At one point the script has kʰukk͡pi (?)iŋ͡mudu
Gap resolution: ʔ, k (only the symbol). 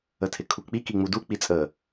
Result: k